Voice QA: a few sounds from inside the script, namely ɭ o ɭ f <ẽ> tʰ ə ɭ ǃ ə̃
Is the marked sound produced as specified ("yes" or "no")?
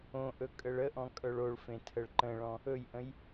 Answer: yes